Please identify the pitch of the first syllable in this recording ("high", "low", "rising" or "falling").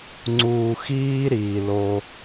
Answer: low